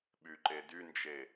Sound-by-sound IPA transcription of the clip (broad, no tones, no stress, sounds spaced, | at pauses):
ɓ y ǃ e d y n d͡ʒ e